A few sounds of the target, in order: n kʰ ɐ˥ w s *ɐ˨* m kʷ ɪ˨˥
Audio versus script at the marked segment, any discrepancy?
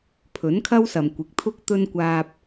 no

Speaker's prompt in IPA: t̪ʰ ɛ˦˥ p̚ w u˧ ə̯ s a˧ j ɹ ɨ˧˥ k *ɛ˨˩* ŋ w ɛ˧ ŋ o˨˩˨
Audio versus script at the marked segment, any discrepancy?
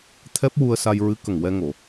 yes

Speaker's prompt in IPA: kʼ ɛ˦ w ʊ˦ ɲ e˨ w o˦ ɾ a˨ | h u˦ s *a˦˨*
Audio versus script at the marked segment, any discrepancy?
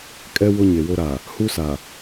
yes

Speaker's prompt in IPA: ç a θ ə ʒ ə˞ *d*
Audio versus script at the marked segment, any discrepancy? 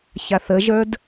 no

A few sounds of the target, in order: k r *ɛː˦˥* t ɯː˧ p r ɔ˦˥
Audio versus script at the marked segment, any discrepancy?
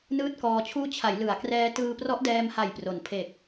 no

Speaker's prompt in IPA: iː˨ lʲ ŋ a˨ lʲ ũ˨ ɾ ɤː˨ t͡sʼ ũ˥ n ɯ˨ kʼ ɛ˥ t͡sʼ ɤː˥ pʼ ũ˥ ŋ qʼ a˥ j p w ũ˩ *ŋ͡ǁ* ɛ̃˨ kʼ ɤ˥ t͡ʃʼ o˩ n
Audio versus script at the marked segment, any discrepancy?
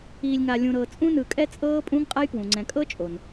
yes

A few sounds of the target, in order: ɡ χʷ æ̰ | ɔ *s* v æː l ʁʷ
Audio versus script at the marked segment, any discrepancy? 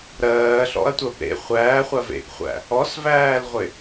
no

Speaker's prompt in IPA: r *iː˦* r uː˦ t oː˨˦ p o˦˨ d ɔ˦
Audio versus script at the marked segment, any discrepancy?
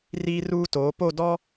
no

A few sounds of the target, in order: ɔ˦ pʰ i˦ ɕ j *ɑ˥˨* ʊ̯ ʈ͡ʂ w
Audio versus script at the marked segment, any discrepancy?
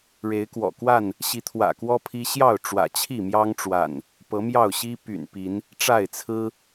no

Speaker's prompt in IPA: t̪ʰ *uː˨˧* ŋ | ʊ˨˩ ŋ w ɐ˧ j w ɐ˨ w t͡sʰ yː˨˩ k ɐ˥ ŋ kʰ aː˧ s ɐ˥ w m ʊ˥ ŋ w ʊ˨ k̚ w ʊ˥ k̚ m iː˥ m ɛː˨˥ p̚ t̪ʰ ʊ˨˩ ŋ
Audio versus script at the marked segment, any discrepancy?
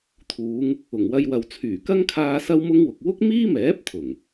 no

